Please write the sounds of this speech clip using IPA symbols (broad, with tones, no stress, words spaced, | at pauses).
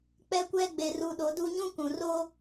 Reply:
k͡pɛ˦kʷɛ˦ɡ͡be˨ ru˨ɗo˨˦du˦ ɲũ˦kũ˨ ro˦